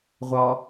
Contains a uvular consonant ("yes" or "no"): yes